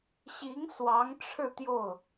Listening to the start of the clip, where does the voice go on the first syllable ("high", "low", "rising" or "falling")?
rising